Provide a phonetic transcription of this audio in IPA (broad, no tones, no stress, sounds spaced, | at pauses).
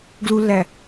ɡ l u lː æ